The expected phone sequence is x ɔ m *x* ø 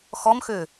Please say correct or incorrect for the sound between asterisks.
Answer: correct